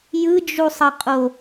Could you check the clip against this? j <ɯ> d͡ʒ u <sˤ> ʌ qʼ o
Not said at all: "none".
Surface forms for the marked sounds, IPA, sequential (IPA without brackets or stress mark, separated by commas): ɯ, sˤ